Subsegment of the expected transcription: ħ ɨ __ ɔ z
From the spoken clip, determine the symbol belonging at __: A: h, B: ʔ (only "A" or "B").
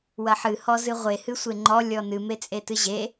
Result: A